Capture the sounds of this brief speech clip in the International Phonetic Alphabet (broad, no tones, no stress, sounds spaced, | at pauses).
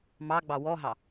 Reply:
m ɑ ɡ͡b ɑ w ɔ ɦ ɑ